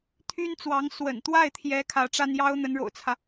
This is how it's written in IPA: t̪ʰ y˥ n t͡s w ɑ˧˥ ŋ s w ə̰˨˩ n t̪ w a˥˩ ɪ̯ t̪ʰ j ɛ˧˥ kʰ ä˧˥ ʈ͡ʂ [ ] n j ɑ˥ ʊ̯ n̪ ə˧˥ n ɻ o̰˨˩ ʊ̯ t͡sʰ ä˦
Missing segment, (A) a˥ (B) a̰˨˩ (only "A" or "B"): A